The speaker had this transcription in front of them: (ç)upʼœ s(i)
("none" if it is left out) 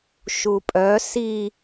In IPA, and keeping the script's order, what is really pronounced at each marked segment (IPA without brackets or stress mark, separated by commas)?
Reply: ʃ, i